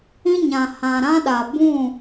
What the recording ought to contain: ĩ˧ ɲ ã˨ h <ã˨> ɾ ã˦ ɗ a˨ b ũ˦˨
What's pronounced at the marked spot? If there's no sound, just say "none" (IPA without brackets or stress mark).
ã˨